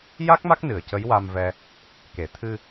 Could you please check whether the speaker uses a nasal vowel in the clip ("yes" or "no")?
no